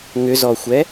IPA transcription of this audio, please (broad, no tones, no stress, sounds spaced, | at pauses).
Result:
ŋ ʏ z ɔ xʷ ɛ